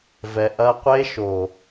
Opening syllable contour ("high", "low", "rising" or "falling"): low